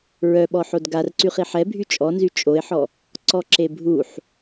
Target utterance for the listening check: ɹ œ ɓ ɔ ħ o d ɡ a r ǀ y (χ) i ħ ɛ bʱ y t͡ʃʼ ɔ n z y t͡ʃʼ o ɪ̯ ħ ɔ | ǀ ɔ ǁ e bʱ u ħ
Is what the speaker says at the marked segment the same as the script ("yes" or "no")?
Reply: yes